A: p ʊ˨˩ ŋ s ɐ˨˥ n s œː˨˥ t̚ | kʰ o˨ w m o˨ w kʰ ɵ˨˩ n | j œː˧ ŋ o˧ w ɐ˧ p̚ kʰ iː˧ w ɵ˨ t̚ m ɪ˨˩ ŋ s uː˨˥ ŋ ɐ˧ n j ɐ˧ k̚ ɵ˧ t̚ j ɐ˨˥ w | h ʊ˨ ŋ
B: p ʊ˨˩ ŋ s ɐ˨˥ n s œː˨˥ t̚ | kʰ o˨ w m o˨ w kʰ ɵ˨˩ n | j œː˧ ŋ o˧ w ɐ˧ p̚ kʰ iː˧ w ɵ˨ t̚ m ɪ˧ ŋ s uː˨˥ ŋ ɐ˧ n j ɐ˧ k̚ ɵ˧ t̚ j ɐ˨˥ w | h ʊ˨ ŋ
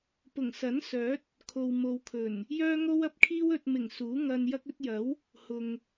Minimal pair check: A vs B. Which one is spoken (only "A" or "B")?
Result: A